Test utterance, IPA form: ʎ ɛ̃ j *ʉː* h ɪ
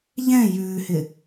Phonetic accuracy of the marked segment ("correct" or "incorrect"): correct